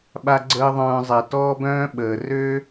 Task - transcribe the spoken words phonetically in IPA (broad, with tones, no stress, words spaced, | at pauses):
ɓa˦ɡ͡ǀəː˦ðˤœ̃ː˧zˤɛ˨ tɔː˦bœ̃ː˦ɓəː˨ rø˦